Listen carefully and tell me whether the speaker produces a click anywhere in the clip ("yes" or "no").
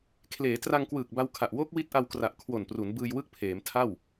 no